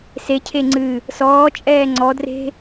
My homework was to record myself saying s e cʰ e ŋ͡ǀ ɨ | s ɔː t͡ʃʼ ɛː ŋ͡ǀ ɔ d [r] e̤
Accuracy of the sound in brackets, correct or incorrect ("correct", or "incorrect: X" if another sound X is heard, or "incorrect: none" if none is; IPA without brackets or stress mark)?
correct